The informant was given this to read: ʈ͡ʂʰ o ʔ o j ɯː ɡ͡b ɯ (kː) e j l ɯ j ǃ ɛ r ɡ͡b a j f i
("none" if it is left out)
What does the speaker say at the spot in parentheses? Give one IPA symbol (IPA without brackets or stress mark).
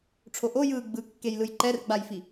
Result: kː